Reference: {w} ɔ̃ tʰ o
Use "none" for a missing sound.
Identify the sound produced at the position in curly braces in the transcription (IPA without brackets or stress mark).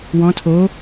w